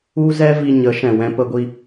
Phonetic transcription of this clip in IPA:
u˦ z ɛ˦ v i˧ ɲ ə˨˦ ʃ ɛ̃˨ w ɛ̃˧ p ə˧ ɡʷ i˧

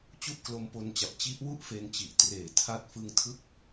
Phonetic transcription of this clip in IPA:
t͡ɕ u˥˩ ʔ k l o˦˥ m p o˧ n t͡ɕ a˨˩ p̚ t͡ɕ i˦˥ ʔ w u˥˩ ʔ f e˧ n t͡ɕ i˨˩ ʔ t r eː˨˩ tʰ a˥˩ t̚ f ɯ˧ ŋ tʰ ɯ˥˩ k̚

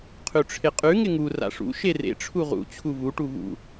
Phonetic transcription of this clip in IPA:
qʰ ʉ ʈ͡ʂʰ ɪ qʼ ʉ ŋ ɪ ŋ u r a̰ ʂ ṵ ʃ e r ḛ ʈ͡ʂʰ u ʁ ṵ t͡ɕʰ u v u ʈ u v ṵ

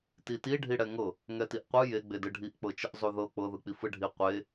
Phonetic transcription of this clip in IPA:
t i t i ɖʱ i ɽ ɛ ŋ ɤ | ŋ ɛ t i ʔ qʷ ɯ j e ɡ͡b e d ɯ ɖʱ i ʔ k͡p ɤ t͡ʃ ɯ ʔ zˤ u ð ɤ k͡p ɤ ð ɯ k͡p i f ɯ ɖʱ i qʷ e

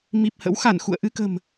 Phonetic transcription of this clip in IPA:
m i˨˩ p̚ h ə̰˧˥ w x a˧˩ n x ṵ˧˨ ə̯ ʔ ɨ˧ k ə̤˨˩ m

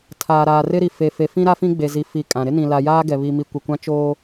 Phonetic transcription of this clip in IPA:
tʰ aː˨ ɾ aː˨ r ɪ˦ ɾ i˨ f e˨ f e˨ f ĩ˦ ɾ a˦ f ĩ˦ ɡ͡b e˨ z i˨ f i˨ kʼ ã˨ ɾ ɪ˦ n ĩ˨ l a˨ j aː˦ ɡ ɛ˨ β i˨ m i˨ kʷ ɪ˨ kʷ ã˦ t͡ʃ oː˦

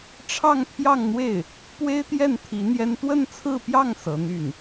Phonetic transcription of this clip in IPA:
ʈ͡ʂʰ ɑ˥˧ ŋ pʰ j ɑ˥˧ ŋ n̪ w e˥˩ ɪ̯ | p w e˥ ɪ̯ t̪ j ɛ˥˩ n t̪ʰ i˧˥ n̪ j ɛ˥ n t̪ w ə˥˧ n t͡sʰ ɹ̩˥˧ p j ɑ˥˩ ŋ s ɤ˧˥ n̪ y˥˩ n

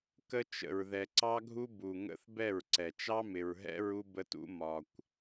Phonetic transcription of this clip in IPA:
k ə˦ t͡ʃ ə̰˨ ɹ ð ɛ˨ ǀ ɑ˦ ɡʱ u˦ b u˨ ŋ ə̰˦ θ b ɛ˦˨ ɹ ǀ ɛ˨ t͡ʃ ɑ˦ m ɪ˨ ɹ ɦ ɛ̰˦ ɹ u˦ b ə˦ t ṵ˦ m ɒ˨ kʷ

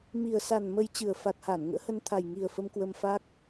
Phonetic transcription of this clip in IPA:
m i˨˩ ə̯ s a˨˩ n m ə˧ j t͡ɕ ɨ˨˩ ə̯ f a˨˩ t̚ h a˧˩ n ŋ ə̰ː˧˥ h ə˧ n t̪ʰ a˨˩ j ŋ i˨˩ ə̯ f ə˧ m k w ə˧ m f a˦˥ k̚

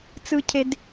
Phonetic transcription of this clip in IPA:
t͡s ɯ˨ cʰ e˨ d

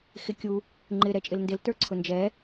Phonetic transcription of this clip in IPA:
x ɪ kʲ u | ŋ͡ǃ ɪ ɾ ɛ t͡ʃʼ ɪ l n d ɪ l t ə˞ ǀʰ ʊ n d͡ʒ ɛ

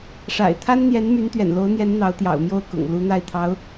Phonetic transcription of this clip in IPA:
ʂ a̰˨˩ ɪ̯ t̪ʰ a˥ n n̪ j ɛ˧˥ n m y˧˥ n t̪ ɥ ɛ̰˨˩ n l o˧˥ ʊ̯ n̪ j ɛ˧˥ n n̪ ɑ˧˥ ʊ̯ t̪ j ɑ̰˨˩ ʊ̯ m j o˥˩ ʊ̯ k ʊ̰˨˩ ŋ l u˧˥ n̪ a˥˩ ɪ̯ t̪ʰ ɑ˧˥ ʊ̯

